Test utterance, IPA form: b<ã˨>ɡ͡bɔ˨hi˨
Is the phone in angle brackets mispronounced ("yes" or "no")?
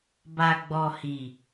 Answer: yes